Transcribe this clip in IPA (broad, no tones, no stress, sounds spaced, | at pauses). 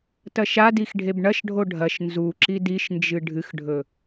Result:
t ɐ ʃ a d i x ɖʱ e b ɳ ɐ ʃ ɖʱ o ɖʱ ɐ ʃ n z u ǁ i d i ʃ n d͡ʒ ɨ ɖʱ ɨ x ɖʱ ɵ